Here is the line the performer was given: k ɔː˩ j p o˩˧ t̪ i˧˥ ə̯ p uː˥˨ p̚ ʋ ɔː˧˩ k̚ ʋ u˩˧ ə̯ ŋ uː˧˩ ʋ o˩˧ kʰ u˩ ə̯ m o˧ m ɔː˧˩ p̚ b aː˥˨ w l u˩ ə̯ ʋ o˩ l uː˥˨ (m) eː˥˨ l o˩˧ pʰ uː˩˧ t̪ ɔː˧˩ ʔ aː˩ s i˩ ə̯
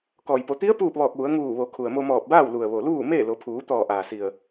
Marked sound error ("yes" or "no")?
no